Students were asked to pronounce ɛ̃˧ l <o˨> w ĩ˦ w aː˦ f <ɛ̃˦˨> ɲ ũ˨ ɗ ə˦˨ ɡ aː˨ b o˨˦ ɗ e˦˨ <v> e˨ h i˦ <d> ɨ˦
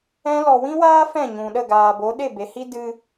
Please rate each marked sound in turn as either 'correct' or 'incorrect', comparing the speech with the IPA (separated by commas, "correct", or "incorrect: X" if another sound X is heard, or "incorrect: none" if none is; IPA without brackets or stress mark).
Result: incorrect: ɔ˨, correct, incorrect: b, correct